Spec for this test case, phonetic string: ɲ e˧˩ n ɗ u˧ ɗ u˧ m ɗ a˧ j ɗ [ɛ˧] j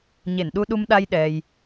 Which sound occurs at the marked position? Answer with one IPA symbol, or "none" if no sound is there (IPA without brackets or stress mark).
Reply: ɛ˧